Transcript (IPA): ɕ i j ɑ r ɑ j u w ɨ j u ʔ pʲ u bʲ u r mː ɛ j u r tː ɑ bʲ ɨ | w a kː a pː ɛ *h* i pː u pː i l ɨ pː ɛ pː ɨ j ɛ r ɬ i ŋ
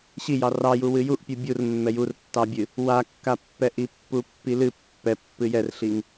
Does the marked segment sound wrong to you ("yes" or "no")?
yes